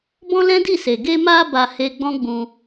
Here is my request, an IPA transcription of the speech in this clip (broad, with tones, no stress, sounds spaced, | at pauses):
b ɔ̃˦ l ɛ̃˦ d i˦˨ s e˨ ɡ e˧ m a˧ b a˧ h e˧ ɡ͡b ɔ̃˦ ɡ͡b ũ˧